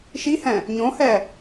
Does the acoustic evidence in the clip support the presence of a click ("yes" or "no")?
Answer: no